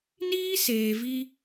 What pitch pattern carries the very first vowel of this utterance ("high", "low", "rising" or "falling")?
high